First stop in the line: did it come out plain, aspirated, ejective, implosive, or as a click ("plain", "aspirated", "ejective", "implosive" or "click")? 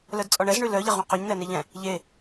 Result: plain